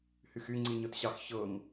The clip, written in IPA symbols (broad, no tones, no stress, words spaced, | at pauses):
hyxy ŋ͡ǀiɲɤtɕɑx çɤŋ